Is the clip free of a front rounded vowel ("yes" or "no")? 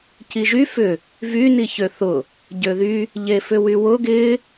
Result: no